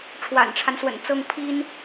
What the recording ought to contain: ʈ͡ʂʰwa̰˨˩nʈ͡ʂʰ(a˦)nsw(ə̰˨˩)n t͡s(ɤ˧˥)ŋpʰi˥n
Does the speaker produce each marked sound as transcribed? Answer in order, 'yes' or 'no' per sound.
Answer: yes, yes, no

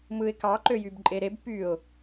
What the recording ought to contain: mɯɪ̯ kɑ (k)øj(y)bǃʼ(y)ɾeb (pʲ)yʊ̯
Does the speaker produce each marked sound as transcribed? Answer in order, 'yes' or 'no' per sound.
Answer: no, yes, no, no

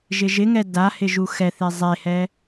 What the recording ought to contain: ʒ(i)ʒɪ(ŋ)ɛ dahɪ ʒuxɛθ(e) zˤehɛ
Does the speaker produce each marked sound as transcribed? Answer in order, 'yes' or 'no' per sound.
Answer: no, yes, yes

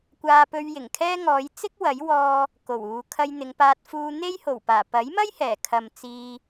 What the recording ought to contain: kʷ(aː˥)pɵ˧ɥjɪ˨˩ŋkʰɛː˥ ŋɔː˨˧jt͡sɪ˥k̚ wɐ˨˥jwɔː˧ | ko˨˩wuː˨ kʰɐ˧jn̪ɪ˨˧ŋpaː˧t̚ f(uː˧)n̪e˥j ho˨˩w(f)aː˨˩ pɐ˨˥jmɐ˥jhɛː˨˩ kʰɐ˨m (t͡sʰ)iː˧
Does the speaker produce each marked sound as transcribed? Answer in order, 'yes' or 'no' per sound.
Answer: no, yes, no, no

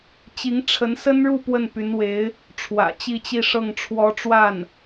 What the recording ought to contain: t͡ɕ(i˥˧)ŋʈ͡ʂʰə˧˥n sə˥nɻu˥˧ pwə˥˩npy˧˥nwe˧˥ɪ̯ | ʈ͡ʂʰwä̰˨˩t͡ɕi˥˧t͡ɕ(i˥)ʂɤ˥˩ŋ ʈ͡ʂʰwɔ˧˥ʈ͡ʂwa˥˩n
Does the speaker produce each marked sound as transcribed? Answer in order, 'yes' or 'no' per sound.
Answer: no, no

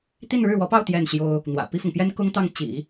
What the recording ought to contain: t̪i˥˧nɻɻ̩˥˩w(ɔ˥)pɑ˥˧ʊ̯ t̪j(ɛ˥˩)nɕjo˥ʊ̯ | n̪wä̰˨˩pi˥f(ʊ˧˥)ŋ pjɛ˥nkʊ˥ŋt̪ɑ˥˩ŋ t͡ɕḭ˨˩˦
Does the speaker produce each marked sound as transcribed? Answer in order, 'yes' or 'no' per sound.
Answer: no, yes, no

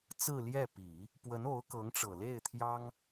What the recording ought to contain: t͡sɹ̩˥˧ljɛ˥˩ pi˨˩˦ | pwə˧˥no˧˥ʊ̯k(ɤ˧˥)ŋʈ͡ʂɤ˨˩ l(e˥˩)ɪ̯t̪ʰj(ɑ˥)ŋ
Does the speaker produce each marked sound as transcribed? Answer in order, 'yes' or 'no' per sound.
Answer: yes, yes, yes

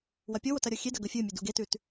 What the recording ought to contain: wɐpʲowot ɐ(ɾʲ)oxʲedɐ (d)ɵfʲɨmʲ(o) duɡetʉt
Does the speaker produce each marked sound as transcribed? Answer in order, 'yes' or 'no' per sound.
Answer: yes, no, no

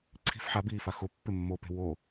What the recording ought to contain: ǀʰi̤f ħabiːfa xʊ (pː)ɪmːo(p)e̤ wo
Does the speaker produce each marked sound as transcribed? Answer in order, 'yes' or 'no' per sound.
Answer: yes, yes

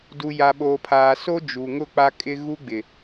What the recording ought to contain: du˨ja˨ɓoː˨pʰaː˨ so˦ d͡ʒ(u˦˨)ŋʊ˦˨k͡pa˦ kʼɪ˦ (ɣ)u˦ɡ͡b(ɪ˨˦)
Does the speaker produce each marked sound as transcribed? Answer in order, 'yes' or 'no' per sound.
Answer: no, yes, no

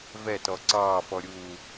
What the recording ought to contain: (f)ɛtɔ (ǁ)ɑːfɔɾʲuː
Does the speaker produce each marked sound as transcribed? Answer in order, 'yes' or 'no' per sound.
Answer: no, no

